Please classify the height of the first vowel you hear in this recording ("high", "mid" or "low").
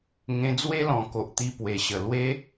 mid